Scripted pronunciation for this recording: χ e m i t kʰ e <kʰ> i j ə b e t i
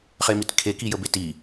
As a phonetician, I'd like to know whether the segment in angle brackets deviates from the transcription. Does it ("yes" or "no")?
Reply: yes